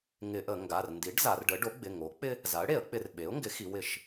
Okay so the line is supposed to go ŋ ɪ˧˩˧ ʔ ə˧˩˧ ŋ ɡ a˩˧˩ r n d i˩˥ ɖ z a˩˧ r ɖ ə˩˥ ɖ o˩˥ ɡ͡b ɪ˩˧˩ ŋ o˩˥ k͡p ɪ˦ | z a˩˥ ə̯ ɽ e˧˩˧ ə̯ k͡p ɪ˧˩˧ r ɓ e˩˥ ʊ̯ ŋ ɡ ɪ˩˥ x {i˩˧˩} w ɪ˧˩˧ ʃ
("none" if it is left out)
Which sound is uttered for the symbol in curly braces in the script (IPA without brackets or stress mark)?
i˩˧